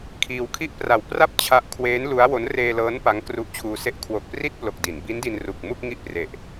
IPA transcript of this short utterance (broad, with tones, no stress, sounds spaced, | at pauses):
kʰ iː˧ w kʰ i˥˩ ʔ p r a˨˩ w p r a˥˩ p̚ t͡ɕʰ a˦˥ ʔ kʰ w eː˦˥ n l u˦˥ a̯ w o˦˥ n r eː˧ l ɤː˦˥ n p a˦˥ ŋ k r u˦˥ ʔ t͡ɕʰ uː˧ s e˦˥ ʔ kʰ w o˨˩ k̚ p r i˥˩ t̚ p l o˨˩ k̚ d i˩˦ n b i˦˥ n d i˧ n r u˨˩ k̚ m u˥˩ k̚ ŋ i˥˩ ʔ p r e˨˩ ʔ